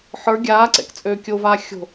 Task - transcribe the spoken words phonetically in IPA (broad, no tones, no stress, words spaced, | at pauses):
ħə˞ ɡʲaːǀɛ̰k t͡sʼøːkʲovaː xʲo̤